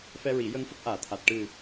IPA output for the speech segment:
f ɛ˧ ɹ i˨˩˦ j ə˧ ŋ f ə˦˥ k̚ ʔ aː˨˩ t̪ʰ a˨˩ t̚ ʈ ɨ˨˩

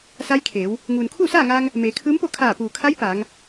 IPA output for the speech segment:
s a˧˥ j kʰ eː˩˧ w | ŋ uː˩ n kʰ uː˥˨ s aː˥˨ ŋ aː˧ ŋ | m eː˩˧ kʰ ɯː˧˥ m p o˥˨ kʰ aː˧˩ p uː˩ kʰ a˧˥ j p aː˩˧ ŋ

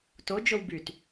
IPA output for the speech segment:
t o d͡ʒ o w b y t

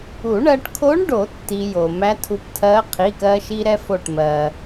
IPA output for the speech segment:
u˨˩˦ ɳ ɜ˧ ʈ kʰ o˧˥ ɳ ɖ o˨˩˦ tː i˧ j o˩ m æ˧˥ tʰ u˧ p tʰ ɜ˧˥ qʰ i˩˧˩ k ɜ˧ ʃ i˧ ɾ ɛ˧ f o˧˩ ʈ m ɜ˩

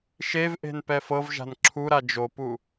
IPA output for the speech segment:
ʃ e v ʔ e̤ n p ɛ f ɤ v ʒ a̤ n ǁʰ u ɾ a d͡ʒ o p u

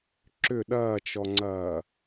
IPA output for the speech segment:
ǁ ʏ ɗ ɐː t͡ʃ ɔ ŋ͡ǀ ɐː

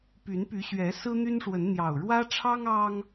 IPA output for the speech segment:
p y˨˦ n p y˨˦ ɕ ɥ ɛ˨˦ s ɹ̩˦ n̪ y˦ n ʂ w ə˨˦ n n̪ j ɑ˨˩ ʊ̯ ɻ w ä˦ ʈ͡ʂʰ ɑ˦ ŋ ɑ˦ ŋ

